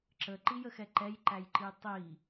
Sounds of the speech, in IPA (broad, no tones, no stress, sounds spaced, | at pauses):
ǁ ə ǃ i j ə x ɛ ǃ ɛ j ǃ æ j ǃ i tˤ i